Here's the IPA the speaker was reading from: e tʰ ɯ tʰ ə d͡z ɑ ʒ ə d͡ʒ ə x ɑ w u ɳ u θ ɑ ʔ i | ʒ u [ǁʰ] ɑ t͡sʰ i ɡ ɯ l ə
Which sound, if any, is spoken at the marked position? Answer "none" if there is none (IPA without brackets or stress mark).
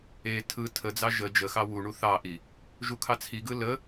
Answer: kʰ